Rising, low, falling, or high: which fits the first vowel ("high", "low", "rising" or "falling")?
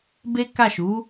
high